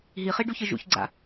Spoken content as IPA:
ɦ i χ i ɖ u ç ɯ ʒ ṵ ç ɡ͡ǀ a̰

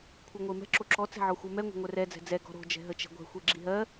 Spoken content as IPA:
kʷʰ e ŋʷ e m ɛ̤ ǁ o ǁ ɔ t͡s ɛ̤ ʕ ɔ xʷ ɜ m ɛ ŋʷ ɛ̤ ŋʷ ɛ r ɛ d͡z ɛ̤ d͡z ɛ ɡ ɔ̤ ɾ o̤ d͡ʒ ɛ̤ ɦ ə t͡ʃ ɛ̤ ɡʷ ɛ̤ xʷ e ɡ͡ǁ i ɦ ɜ

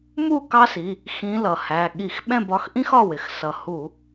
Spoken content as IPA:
m u˥˨ k ɑ˥ s i˩˧˩ | x ĩ˧˥ l ʌ˩ h æ˩˧˩ ɠ i˧˩˧ x ɓ ɛ̃˥˨ b ɒ˩˧˩ x ʔ ĩ˥ x ɒ˩˧˩ w ɪ˩ x s ʌ˩ h u˧˩˧

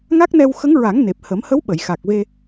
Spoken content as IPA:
ŋ a˦˥ k̚ n ɛ˧ w x ə˧˥ ŋ ɹ a˨˩˦ ŋ n e˨˩ p̚ h ə˨˩˦ m h ə˧˥ w ɓ ə˨˩˨ j x a˨˩ k̚ v e˧

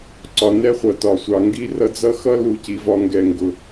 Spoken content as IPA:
ǀ ɒ˩ n ɛ˦ χʷ ʌ˩ t ɒ˩ sʷ ɑ˩ ŋ ɡ i˦ r ʌ˦ d͡z ʌ˥ x ʌ˥ l u˨ c i˩ v ɒ˨ ŋ ɡ ɛ˩ ŋ ɡ ʊ˩

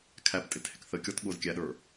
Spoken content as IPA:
kʰ æ p tʼ ɪ t h ɪ k θ ə kʲ ɔ t ɠ ʊ z kʲ æ ɗ ə˞

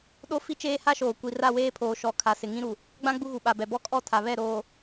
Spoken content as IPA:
ɗ o˦ f i˦ t͡ʃ eː˦ h a˦ ʃ oː˨ kʷ i˨ r a˦˨ w eː˦ pʰ oː˨ ʃ ɔ˨ kʰ a˨ s ɪ˨ ŋ ĩ˦ ɾ u˨ | ɡ͡b ã˦ ɡ͡b u˦ ɣ u˨ ɓ a˨ b ɛ˨ b ɔ˦ kʼ ɔ˦˨ tʰ a˨ β ɛ˦˨ ɾ oː˨

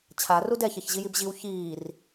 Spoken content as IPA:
t͡ɕʰ a r u d ɛ ç ɛ ç ʑ i j i b ʑ i w ç iː r

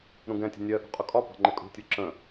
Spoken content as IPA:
ɾ ũ ɡ ɛ̃ tʲ ə̤ nʲ ɜ ʔ ṳ qʼ ʊ kʼ ɒ p ɑ̤ ŋ͡ǃ ɪ kʼ ṳ tʲ u ǁ ə̃

